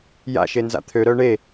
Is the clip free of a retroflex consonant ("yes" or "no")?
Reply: no